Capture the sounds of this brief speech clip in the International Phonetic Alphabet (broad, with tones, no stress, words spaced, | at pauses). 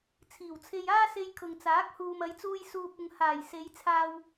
t͡sʰiː˨˩wt͡sʰe˧jaː˥se˧j kʰʊ˨ŋt͡saː˨˥k̚ huː˨mɐ˨˧jt͡suː˧j suː˧p̚ʊ˧ŋ haː˨˩jse˨˧j t͡sʰaː˧w